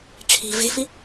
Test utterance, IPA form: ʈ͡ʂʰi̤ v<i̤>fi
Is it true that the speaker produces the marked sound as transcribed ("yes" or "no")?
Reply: no